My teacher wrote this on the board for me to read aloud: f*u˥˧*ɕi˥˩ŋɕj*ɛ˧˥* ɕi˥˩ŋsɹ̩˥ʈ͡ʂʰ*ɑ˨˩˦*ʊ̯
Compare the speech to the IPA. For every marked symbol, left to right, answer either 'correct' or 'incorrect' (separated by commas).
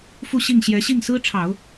correct, correct, correct